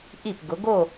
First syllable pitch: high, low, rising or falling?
falling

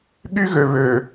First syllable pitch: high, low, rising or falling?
high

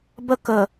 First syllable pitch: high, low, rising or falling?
falling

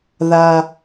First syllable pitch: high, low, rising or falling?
high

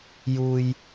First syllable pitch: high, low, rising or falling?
low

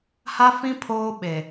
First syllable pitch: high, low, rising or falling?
high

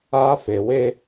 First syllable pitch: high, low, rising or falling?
high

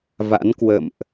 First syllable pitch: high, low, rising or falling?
rising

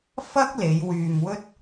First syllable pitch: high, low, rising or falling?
high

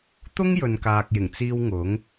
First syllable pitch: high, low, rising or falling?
high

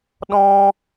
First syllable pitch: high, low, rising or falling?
high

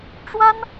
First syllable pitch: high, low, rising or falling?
high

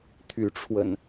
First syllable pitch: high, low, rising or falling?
rising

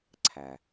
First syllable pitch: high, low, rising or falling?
low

